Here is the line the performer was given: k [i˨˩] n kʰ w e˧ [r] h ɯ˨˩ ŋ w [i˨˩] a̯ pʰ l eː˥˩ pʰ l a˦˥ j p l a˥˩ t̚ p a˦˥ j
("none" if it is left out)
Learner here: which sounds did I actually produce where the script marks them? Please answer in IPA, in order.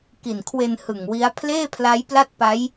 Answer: i˨˩, n, i˦˥

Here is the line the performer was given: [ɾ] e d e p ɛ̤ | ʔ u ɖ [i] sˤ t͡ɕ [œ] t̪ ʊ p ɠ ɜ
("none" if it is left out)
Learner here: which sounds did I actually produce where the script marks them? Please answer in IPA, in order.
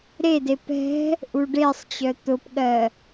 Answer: ɾ, e, œ

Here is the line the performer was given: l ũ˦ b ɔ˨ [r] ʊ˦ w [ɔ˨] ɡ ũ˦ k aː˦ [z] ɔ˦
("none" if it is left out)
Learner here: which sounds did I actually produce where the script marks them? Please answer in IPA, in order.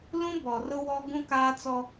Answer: r, ɔ˦, t͡s

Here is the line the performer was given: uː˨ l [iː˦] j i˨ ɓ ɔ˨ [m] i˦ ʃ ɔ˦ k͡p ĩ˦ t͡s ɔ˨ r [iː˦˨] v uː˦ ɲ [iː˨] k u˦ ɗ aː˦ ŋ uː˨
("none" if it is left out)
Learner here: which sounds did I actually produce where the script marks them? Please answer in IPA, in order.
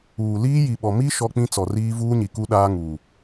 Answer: iː˦, m, iː˦, i˨

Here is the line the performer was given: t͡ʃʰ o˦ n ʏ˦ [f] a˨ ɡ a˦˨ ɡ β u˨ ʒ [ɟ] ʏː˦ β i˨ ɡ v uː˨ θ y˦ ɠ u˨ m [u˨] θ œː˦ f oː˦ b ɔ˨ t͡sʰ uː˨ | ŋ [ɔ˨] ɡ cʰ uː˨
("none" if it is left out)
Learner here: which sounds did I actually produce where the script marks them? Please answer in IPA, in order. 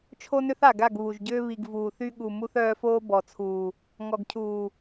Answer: θ, ɟ, u˦, ɔ˨

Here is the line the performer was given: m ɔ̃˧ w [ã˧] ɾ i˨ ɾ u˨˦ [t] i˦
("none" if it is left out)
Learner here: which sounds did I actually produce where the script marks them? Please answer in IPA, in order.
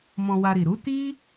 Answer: a˧, t

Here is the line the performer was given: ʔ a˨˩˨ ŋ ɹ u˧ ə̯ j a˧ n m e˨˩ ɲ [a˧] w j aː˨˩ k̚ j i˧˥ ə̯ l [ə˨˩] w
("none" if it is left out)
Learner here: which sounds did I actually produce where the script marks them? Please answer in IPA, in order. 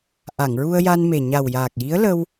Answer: a˨˩, ə˧

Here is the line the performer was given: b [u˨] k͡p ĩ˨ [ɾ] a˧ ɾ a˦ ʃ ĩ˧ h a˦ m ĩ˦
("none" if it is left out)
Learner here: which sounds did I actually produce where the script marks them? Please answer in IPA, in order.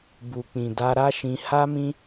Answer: u˨, d

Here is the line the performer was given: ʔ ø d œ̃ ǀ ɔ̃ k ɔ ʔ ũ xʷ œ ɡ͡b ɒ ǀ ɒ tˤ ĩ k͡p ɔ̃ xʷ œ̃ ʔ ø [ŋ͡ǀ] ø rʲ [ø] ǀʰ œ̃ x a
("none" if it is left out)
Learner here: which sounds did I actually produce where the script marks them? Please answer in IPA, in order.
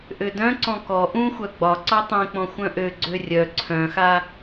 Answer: ɡ͡ǀ, œ

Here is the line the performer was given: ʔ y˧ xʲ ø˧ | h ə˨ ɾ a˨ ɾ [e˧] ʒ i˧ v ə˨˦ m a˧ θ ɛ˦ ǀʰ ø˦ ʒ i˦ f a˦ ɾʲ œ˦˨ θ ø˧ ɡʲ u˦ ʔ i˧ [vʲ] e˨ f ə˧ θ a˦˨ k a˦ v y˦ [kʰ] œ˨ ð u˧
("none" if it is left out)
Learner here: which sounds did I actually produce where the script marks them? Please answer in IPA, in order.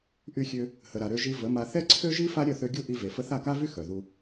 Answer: ø˧, v, x

